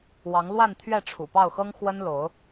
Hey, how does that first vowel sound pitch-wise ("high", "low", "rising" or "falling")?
rising